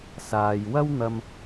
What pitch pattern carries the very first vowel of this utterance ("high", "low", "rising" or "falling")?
low